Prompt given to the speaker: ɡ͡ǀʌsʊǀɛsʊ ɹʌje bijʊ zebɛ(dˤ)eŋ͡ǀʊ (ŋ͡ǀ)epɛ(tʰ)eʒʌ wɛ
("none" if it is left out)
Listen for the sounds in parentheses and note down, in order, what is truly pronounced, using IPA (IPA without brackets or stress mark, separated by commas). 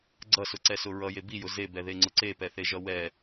ð, ǀ, θ